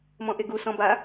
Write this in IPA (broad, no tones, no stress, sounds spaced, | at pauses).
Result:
m ɔ̃ ʔ e ɡ u s ɔ̃ b a